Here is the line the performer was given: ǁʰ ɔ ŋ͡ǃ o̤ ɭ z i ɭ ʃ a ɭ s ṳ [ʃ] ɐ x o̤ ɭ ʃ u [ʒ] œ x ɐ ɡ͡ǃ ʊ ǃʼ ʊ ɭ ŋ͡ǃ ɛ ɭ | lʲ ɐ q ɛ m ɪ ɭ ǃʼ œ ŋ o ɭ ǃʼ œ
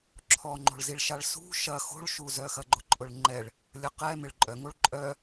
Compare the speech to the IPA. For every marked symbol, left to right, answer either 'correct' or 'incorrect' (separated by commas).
correct, incorrect